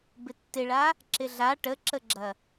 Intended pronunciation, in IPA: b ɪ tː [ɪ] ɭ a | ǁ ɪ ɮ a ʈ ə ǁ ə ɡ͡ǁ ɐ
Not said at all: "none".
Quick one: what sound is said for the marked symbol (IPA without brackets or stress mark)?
ɪ